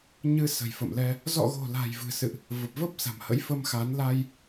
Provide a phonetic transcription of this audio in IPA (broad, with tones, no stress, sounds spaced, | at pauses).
ɲ ɨ˧ s ə̤˨˩ j f ə̰˧˨ m l ɛ˧ | z ɔ̰˧˨ ɣ o̤˨˩ l a̤˨˩ j v ɨ̤˨˩ s ɨ̰˧˨ ʔ | v ə˨˩ p̚ v ə˦˥ p̚ s a̤˨˩ m h ə̰˧˥ j f ə˧ m x a˨˦ n l a˧ j